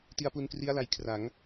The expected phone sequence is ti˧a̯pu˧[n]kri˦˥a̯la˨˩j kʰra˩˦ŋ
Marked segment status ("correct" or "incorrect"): correct